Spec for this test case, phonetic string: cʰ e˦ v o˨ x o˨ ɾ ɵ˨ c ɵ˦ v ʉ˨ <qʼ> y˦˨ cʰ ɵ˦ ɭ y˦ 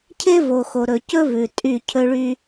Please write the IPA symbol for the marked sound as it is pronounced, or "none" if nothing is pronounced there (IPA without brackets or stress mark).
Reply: tʼ